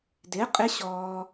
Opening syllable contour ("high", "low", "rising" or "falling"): rising